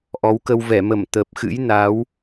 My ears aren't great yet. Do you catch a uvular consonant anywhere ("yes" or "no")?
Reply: no